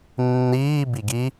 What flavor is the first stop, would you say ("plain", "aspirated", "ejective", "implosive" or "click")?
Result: plain